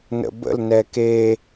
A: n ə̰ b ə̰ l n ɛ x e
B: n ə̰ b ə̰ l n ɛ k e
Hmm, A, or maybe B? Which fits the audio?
B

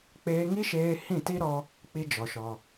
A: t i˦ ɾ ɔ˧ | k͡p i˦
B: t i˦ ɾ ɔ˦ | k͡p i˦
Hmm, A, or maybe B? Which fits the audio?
A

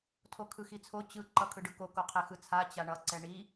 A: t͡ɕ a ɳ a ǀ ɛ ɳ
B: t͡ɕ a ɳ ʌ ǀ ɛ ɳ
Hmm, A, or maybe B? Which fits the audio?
B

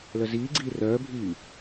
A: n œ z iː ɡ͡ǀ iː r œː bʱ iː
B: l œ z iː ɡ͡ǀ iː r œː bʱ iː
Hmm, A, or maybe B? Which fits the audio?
B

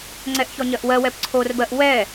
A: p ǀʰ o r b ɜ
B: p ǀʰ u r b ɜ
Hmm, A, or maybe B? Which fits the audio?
A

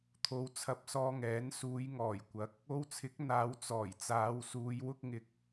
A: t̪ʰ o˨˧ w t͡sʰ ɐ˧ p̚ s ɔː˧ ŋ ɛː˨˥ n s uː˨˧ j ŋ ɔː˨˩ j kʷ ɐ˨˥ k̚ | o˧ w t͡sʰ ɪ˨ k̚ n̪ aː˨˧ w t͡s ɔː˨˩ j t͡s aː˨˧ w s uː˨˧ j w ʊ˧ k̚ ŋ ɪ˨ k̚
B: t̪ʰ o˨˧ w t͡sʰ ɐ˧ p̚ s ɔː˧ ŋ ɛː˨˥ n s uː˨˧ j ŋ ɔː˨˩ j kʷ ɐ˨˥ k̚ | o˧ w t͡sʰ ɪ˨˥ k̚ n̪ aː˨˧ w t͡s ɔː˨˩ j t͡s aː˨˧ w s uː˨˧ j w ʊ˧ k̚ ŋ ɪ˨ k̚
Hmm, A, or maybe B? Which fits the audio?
B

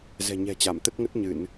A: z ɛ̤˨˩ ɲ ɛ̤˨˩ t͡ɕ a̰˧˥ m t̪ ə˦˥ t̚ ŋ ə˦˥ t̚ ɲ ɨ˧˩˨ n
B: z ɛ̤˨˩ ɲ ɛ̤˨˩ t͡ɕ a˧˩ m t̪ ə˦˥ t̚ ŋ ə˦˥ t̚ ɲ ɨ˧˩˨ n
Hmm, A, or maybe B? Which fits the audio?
B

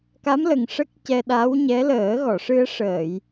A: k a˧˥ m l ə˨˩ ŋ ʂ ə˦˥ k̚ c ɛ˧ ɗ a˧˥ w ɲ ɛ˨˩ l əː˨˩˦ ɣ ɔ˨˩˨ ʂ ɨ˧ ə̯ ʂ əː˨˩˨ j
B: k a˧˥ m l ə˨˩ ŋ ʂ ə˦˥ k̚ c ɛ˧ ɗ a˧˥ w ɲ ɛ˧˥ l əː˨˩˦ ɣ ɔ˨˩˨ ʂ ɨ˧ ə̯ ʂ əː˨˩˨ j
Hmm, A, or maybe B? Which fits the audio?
B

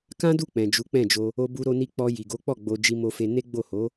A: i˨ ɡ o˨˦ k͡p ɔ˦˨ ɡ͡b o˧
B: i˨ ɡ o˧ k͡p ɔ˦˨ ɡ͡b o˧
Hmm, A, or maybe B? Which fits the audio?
A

